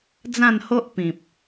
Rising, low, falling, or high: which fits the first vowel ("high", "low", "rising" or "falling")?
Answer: falling